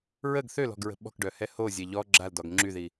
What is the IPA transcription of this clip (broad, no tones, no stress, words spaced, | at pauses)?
ɹəɡ θølɔ̤ɡɹə̤ ɓɔ̤kɖœhɛ hozʲɛ ʎɔ ɡ͡ǁaldɔɡ ŋ͡ǁyði